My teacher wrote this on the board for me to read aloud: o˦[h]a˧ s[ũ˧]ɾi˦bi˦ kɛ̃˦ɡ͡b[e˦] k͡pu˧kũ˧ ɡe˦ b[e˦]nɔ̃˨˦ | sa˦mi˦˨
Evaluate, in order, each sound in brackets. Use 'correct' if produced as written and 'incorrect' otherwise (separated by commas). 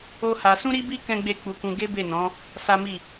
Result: correct, incorrect, incorrect, incorrect